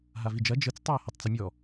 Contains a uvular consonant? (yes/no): no